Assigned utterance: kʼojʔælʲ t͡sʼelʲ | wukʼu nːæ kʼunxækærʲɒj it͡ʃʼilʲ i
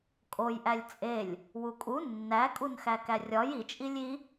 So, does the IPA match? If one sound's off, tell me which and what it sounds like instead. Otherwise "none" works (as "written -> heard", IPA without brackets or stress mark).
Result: none